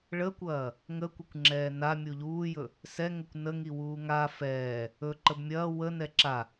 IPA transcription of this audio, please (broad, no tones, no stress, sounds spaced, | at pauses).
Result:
ɭ ə kʷ ɐː | ŋ ə kʷ ə kʷ ŋ͡ǁ ɛː n a mʲ u ʎ uː j ɵ | s ɛ ŋ ə kʷ n ə ŋ i w uː ŋ a f ɛː | ɵ ǃ ə b mʲ ɐː w ə n ɛ ǁ a